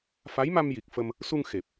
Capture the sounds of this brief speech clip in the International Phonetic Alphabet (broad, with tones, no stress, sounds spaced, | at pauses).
f a˧˥ j m a˧ m j i˨˩ k̚ f ə˧ m | s u˧ ŋ x e˨˩ p̚